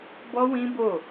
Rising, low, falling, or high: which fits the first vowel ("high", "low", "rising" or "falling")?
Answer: high